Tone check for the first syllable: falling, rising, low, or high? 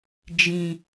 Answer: low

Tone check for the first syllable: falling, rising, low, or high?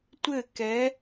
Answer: falling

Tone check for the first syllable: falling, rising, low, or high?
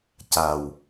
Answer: low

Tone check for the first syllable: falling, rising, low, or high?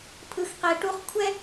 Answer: low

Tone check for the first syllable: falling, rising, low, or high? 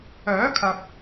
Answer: rising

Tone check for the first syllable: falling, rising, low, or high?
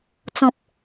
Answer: low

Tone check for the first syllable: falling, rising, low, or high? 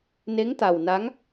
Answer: rising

